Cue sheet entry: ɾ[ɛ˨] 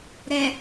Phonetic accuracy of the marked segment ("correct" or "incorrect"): correct